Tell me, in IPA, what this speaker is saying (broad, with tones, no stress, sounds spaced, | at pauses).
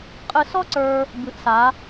qʼ ɨ˧ s ɔ˥ ǀ ə˞˧ | b ɨ˩˧ ʔ s a˩˧